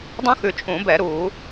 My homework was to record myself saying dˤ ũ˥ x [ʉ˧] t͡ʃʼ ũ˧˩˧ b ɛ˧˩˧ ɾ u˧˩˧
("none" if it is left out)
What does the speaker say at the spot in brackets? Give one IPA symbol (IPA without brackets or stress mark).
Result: ʉ˧